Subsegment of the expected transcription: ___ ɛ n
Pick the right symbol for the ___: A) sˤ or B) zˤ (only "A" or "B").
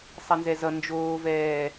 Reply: A